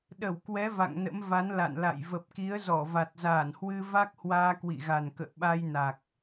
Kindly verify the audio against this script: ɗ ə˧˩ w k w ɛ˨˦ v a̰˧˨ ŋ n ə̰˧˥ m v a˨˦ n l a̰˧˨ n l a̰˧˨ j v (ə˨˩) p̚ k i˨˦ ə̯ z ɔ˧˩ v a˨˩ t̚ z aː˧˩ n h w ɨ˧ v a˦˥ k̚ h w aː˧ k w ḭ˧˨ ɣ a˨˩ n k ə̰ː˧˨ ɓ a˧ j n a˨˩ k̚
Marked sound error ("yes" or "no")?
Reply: no